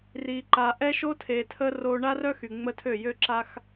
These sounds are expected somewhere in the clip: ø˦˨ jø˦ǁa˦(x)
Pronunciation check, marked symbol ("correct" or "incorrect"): correct